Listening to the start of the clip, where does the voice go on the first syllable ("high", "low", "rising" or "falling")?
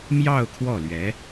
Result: falling